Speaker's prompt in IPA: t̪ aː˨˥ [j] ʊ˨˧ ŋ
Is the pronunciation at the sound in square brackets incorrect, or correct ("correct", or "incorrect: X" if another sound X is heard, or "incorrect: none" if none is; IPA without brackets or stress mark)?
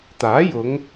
correct